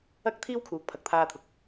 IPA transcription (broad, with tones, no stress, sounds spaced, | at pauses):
ɐ˥ k̚ t̪ʰ iː˥ w kʰ uː˨˥ k̚ pʰ ɐ˨ k̚ t̪ʰ aː˧ t̪ʰ ʊ˨ k̚